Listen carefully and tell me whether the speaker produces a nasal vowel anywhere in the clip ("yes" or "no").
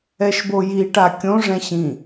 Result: yes